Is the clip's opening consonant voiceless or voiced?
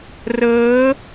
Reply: voiced